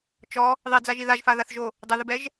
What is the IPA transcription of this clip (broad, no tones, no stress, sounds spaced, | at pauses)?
t͡ʃ ɔ | ðˤ i d͡z a ʒ i ð a ʒ f a ð a θ ʒ o | dˤ ɘ ð ɘ b ɛ ʒ